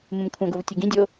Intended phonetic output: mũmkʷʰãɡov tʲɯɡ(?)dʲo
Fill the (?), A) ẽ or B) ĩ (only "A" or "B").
B